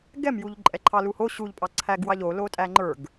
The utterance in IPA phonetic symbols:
ɡ ɛ m j u ʎ ǃʼ ɛ ǃʰ ɑ l u h o ɕ u ʎ pʼ ɑ ǀʰ æ ɡ w ɑ ʎ o l o tʼ æ ŋ͡ǃ ə˞ ɡ

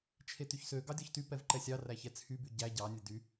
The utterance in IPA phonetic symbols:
t͡ʃʰ e t y ç s ø ɡ ɑ dʲ ɔ ç t y p ɛ v ǃ ɛ sʲ ɑ r æ ç ɛ t͡sʰ y b y ɟ æ ɟ ɑ nʲ ɛ d y

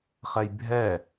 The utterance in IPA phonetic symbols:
χ ɛ j bʱ ɛ

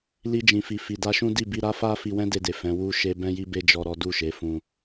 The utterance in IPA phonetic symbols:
l i˧ d͡ʒ ĩ˨ f i˨ f i˨ d a˧ ʃ ũ˦ d i˦˨ b i˧ ɾ a˦ f a˦ f i˧ w ɛ̃˦ d e˧ d e˨ f ɛ̃˨˦ w u˦ ʃ e˦ b ɛ̃˦ j i˦ b e˦ d͡ʒ ɔ˦ ɾ ɔ˦ d u˦˨ ʃ e˨˦ f ũ˧

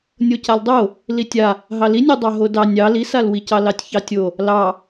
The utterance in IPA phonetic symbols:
nʲ o c a l dˤ o | l i tʲ a | ɦ ɑ l i nʲ o dˤ ɑ ɦ o d ɑ nʲ ɑ l i s a l w i c ɑ l ɑ tʲ ç ɑ tʲ o | l ɑ

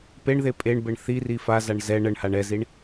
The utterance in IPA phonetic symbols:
p e ɳ ð e pʼ e ɳ b ɘ ɳ θ i r i f a z a ɳ z ɛ ɳ ə ɳ h a ɳ ɛ z i ɳ

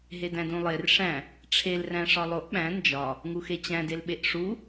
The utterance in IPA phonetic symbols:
ɦ e d æ̃ d ũ lˠ e r ʂ æ̃ | ʈ͡ʂʰ e l r æ̃ ʂ ɒ lˠ o ʔ ɓ æ̃ n d͡ʒ ɒ | ŋ u x e t͡ɕ æ̃ d e l ɓ e ʔ ʂ u

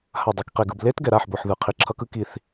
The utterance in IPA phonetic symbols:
h a˧˩ dˤ e˩˧˩ k q e˧˩ ɡ ɯ˧˩ b l e˧˥ t ɡ ɛ˩ ɾ a˩˧˩ ħ b o˩ ħ ð ɯ˩ qʰ i˩ ǁʰ ʌ˧˥ k ɯ˧˥ k i˧˩ θ

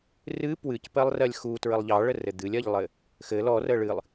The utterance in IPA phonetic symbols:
r ɨ p w ɨ c p ɜ lˠ r ɜ lʲ x u t ɹ ə lˠ ʎ ɑ ɭ ə r ɘ d̪ ɨ lʲ ɜ ʎ lˠ ɘ | x ɘ l ɔ r ə ɭ ɨ lˠ

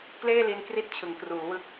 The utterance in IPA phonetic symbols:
k l eː˥˩ l i˧ n k r i˥˩ t̚ t͡ɕʰ ɯ˩˦ ŋ k r uː˩˦ w ɯ˦˥ k̚

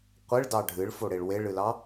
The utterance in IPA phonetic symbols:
qʷ ɪ ɭ d ɑ ɖʱ ɨ ɭ f o ɽ e ɭ w e ɭ ɨ l ɑ

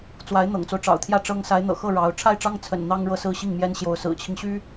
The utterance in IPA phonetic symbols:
t͡s w a˧˥ ɪ̯ n̪ ɤ̰˨˩ ŋ t͡s o˦ ʊ̯ ʈ͡ʂ ɑ̰˨˩ ʊ̯ t̪ʰ j ä˥˩ ʈ͡ʂ ɤ˥ ŋ s a˧˥ ɪ̯ n̪ ɤ̰˨˩ x ɤ˥˩ ɻ ɑ˧˥ ʊ̯ ʈ͡ʂʰ a˥˩ ɪ̯ ʈ͡ʂ ɑ˥ ŋ t͡sʰ ə̰˨˩ n n̪ ɑ˥ ŋ ɻ ɤ˥˩ s ɹ̩˥ ɕ i˥˩ ŋ m j ɛ˥ n ɕ j o˧˥ ʊ̯ s ɹ̩˨˩ t͡ɕʰ i˦ ŋ ɕ y˥

